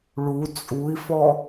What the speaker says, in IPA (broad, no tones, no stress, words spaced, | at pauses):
ɭu t͡sʼui̯fɔ